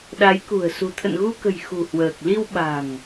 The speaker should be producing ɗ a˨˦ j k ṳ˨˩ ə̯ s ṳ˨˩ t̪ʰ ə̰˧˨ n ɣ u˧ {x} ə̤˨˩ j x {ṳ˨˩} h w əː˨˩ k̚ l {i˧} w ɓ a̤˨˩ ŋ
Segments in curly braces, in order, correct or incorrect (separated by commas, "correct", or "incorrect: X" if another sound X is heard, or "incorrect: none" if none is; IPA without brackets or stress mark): incorrect: k, correct, correct